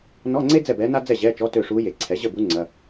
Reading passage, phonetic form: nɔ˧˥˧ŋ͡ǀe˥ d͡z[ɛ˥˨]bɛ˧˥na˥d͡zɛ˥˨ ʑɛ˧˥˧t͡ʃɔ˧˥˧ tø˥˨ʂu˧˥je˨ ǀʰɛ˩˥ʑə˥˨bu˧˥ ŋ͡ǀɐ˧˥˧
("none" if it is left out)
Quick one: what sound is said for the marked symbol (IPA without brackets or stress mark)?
ɛ˥˨